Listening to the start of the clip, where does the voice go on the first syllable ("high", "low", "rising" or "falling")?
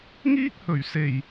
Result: high